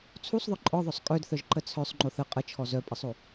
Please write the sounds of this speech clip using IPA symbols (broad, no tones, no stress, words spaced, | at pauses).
t͡sʰusˤðˤœ ǃʼɔðˤœsˤ kʼœdθœʒǃə t͡sʰœsˤŋ͡ǃoθ ə qʼət͡ʃʰɔ zœpʼəsˤo